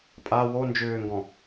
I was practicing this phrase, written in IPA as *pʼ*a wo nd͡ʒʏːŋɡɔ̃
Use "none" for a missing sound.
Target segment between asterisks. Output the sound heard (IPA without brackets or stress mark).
pʼ